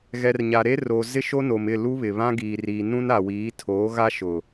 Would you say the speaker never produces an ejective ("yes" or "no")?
yes